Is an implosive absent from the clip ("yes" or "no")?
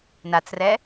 yes